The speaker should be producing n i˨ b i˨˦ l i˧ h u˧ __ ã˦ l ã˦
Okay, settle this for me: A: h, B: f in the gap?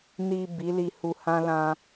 A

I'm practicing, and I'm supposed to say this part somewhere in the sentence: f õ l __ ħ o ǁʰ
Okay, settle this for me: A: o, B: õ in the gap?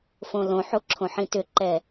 B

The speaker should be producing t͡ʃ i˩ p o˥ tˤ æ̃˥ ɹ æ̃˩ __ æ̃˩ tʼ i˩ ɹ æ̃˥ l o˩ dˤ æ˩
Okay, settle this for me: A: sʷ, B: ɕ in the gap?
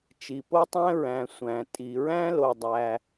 A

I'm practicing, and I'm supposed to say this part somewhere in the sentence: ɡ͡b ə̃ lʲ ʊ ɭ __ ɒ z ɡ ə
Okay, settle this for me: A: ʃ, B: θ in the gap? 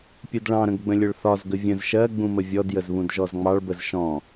B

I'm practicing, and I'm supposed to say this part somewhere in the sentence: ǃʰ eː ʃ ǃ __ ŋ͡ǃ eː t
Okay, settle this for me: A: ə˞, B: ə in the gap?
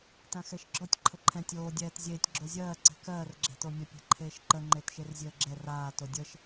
B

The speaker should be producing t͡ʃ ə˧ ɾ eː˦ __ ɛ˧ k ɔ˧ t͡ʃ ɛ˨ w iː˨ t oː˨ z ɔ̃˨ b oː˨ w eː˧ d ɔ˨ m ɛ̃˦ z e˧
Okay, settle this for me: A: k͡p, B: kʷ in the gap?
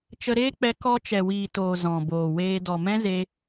A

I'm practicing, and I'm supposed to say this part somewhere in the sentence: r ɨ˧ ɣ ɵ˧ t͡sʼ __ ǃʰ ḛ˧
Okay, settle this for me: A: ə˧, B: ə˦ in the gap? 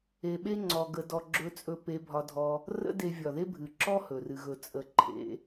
A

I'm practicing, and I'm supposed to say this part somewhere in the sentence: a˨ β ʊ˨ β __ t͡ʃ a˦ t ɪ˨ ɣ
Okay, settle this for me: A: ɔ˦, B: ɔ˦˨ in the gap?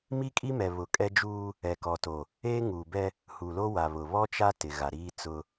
A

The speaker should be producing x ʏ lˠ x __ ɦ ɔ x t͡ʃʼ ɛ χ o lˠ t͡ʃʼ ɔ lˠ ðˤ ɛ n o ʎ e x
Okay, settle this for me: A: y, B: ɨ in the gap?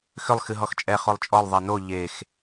B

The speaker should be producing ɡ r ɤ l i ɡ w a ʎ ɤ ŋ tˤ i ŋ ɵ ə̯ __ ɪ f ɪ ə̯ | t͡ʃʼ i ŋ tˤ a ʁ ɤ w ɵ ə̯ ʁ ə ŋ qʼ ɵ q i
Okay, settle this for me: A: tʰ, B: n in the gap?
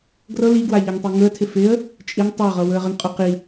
A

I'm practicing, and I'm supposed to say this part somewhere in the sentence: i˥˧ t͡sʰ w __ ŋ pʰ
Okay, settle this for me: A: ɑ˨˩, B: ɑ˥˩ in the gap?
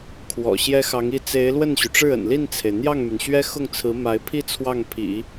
B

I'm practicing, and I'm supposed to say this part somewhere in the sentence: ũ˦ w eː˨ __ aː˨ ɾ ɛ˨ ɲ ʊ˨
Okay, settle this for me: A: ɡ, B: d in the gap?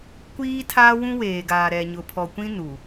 A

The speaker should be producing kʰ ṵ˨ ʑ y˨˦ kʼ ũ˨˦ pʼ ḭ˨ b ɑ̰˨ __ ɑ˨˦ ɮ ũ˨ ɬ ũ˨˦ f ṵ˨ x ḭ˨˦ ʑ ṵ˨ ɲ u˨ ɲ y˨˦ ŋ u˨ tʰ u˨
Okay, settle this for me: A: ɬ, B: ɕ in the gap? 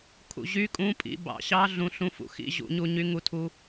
B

